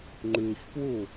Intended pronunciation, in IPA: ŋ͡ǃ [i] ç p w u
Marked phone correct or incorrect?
incorrect